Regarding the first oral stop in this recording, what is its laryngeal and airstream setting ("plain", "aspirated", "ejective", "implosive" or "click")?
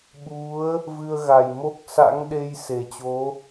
implosive